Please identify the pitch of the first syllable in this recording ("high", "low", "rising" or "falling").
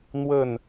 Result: falling